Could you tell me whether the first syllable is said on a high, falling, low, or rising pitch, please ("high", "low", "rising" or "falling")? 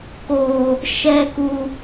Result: high